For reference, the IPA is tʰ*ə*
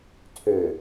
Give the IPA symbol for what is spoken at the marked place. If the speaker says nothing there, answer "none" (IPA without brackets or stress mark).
ø